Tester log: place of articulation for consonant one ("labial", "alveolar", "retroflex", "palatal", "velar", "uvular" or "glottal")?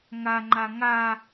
velar